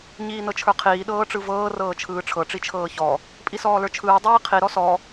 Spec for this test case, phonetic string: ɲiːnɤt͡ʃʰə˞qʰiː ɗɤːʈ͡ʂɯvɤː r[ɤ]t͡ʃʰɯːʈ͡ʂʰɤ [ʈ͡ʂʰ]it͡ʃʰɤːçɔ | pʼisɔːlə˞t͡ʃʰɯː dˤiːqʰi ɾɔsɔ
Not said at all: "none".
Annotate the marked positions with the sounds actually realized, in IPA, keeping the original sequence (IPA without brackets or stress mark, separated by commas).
ɤː, ʈ͡ʂ